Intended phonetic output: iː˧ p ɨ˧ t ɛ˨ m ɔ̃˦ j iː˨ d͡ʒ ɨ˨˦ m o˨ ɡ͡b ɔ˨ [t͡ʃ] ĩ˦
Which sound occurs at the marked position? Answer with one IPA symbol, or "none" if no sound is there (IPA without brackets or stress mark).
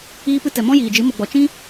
t͡ʃ